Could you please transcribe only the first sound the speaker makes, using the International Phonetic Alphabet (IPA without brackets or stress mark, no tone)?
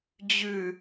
d͡ʑ